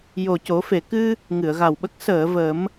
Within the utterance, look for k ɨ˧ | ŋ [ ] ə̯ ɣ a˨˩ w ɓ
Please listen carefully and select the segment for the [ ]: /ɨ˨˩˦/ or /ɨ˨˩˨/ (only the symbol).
ɨ˨˩˨